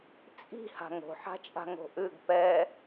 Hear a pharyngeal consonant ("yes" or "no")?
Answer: yes